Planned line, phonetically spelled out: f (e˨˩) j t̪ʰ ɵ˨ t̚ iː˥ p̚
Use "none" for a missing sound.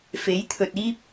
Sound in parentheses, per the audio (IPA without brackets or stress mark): e˨˥